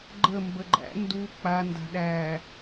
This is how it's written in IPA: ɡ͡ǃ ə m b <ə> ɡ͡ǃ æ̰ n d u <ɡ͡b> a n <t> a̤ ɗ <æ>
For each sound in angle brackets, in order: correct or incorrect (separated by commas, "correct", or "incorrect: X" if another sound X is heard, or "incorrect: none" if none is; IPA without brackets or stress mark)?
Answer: correct, incorrect: k͡p, incorrect: d, correct